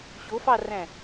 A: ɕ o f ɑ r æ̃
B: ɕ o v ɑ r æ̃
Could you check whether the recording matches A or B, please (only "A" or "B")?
A